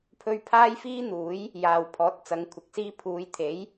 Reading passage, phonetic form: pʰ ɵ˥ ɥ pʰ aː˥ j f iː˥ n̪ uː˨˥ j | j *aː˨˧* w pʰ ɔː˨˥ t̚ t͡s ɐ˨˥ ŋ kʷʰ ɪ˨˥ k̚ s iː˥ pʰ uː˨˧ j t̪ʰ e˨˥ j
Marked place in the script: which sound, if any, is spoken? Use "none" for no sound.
aː˨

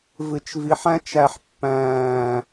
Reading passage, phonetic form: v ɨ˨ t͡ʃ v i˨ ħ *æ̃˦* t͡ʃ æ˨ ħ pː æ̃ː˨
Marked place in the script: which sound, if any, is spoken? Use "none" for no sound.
æ̃˦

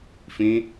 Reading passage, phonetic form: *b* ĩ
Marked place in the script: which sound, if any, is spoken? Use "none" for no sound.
f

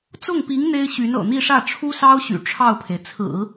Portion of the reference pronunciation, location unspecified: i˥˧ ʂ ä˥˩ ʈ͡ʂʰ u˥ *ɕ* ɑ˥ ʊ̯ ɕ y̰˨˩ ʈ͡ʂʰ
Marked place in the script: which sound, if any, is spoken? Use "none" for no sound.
s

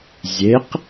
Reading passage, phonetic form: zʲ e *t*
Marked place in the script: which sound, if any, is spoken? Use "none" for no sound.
q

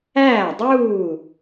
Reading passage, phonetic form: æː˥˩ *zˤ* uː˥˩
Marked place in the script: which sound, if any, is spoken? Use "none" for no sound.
dˤ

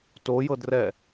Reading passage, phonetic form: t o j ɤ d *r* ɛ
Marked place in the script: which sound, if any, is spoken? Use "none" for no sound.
r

